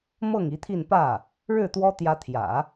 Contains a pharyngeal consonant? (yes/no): no